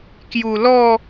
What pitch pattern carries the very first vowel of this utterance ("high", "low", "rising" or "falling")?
low